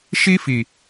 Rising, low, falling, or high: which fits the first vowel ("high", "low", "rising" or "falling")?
high